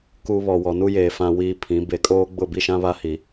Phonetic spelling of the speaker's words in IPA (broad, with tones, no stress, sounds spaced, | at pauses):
k u˦ β ɔ˨ w ɔ˨ n u˦ j eː˨ f ã˦ w iː˦ pʰ ĩ˨˦ b e˨ kʼ oː˦ ɡ͡b ʊ˦˨ b i˦ ʃ ã˦ β a˦ h i˨